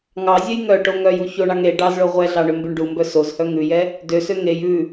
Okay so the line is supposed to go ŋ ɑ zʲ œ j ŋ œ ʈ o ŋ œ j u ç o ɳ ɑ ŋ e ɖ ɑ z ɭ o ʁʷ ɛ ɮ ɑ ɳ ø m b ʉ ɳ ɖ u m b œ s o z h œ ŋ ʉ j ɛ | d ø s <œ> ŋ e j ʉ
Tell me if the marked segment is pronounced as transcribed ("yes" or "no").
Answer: no